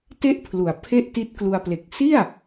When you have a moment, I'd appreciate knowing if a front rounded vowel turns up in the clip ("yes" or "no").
no